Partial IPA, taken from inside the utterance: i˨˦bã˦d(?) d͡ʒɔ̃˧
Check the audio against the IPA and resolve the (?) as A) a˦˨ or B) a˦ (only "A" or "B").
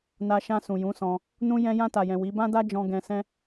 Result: B